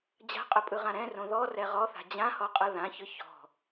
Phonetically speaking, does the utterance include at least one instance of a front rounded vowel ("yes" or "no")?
no